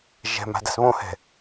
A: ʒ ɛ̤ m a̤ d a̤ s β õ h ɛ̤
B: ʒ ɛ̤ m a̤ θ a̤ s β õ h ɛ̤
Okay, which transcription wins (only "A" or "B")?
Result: A